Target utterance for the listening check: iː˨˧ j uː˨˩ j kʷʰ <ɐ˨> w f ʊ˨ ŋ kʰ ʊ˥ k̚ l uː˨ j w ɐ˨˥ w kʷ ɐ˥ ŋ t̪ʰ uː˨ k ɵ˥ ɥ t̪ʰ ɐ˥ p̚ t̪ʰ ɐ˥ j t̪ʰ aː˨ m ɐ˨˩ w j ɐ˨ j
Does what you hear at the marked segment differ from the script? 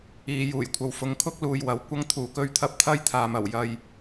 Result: no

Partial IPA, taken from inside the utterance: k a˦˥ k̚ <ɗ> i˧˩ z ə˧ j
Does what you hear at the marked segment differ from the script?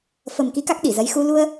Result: no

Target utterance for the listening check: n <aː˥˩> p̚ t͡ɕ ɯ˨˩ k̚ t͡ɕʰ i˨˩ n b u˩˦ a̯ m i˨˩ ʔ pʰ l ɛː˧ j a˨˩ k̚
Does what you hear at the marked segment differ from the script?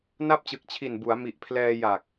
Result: yes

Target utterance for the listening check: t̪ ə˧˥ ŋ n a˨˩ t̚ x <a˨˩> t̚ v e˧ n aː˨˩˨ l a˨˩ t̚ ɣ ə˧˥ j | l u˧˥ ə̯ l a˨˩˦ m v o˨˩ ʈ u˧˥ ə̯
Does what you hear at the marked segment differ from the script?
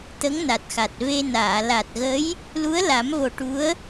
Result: no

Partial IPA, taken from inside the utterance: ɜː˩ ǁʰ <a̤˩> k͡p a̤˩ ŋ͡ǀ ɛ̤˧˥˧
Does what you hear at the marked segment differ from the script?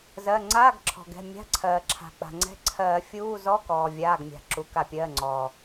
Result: no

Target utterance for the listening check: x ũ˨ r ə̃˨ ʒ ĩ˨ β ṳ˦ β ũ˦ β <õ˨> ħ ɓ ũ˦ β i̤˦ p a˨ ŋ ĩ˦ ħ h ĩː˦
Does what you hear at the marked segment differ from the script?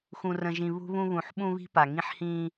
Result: yes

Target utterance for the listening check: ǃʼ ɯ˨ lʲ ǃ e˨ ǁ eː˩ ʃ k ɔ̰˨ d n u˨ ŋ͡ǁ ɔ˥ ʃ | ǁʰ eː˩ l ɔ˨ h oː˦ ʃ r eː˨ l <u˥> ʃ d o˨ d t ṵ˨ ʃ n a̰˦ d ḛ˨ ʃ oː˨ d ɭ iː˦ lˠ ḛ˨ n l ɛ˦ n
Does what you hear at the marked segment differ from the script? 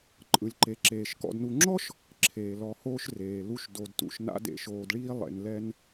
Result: yes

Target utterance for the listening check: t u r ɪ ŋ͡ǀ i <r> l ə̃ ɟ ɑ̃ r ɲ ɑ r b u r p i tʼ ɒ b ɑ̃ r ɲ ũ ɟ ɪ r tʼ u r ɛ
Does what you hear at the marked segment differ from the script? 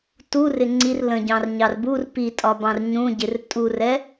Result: no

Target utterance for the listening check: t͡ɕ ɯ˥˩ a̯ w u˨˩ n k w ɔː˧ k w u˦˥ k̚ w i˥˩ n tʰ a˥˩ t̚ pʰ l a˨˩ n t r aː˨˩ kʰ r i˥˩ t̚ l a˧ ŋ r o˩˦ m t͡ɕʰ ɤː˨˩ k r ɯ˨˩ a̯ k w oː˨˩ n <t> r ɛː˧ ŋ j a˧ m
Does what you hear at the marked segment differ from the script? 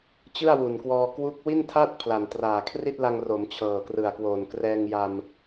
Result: yes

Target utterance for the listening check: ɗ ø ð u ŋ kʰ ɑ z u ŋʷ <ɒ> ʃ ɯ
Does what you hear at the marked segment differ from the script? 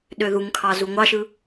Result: yes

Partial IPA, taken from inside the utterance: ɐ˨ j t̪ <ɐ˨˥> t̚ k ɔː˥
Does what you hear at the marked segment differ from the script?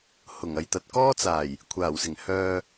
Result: yes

